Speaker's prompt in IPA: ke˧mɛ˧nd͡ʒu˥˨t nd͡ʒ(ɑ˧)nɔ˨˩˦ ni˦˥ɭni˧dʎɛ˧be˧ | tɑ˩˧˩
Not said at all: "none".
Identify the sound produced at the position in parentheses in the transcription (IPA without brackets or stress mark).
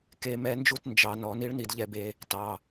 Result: ɑ˧